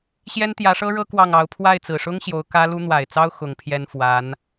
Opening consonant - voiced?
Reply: no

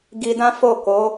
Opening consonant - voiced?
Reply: yes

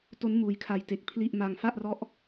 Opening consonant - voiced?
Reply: no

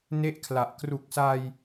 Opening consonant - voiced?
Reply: yes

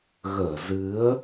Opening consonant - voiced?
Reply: yes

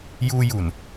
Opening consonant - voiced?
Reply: yes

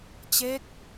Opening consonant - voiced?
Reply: no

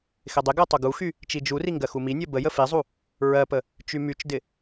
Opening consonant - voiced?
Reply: no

